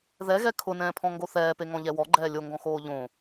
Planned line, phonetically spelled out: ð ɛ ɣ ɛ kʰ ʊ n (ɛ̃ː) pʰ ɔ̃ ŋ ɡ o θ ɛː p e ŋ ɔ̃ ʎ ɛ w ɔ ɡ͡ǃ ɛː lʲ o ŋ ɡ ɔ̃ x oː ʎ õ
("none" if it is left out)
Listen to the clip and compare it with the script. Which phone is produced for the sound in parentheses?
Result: ɛ̃ː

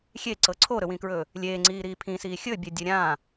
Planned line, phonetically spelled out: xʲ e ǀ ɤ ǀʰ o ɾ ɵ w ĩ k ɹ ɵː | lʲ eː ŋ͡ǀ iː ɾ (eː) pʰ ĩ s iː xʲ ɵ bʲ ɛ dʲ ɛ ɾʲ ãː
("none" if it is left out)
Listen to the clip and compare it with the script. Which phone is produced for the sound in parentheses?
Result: iː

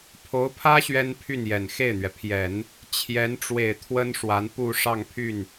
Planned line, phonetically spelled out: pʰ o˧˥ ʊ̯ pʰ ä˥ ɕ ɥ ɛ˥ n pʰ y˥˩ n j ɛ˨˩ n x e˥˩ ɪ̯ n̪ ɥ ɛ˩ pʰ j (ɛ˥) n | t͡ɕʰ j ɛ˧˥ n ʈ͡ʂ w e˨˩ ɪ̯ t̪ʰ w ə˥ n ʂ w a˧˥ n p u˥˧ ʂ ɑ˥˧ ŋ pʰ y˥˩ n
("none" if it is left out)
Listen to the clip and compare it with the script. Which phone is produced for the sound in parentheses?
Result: ɛ˨˩˦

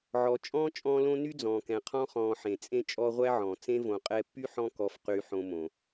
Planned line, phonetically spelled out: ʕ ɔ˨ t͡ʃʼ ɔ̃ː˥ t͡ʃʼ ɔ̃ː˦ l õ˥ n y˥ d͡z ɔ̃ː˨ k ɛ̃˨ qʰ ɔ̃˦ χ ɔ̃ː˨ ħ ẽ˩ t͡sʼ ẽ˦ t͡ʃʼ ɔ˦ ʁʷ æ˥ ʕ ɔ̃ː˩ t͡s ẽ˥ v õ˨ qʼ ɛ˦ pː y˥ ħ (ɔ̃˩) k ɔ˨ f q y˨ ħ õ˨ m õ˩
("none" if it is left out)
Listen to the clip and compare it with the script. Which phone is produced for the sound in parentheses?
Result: ɔ̃˦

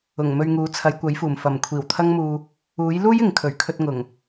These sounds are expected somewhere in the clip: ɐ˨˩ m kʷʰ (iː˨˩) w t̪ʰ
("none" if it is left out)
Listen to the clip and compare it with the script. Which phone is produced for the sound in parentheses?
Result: iː˨˩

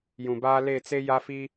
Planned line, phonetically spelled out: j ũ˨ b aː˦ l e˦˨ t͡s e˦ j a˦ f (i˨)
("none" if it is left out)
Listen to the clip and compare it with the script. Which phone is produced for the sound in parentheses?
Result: i˦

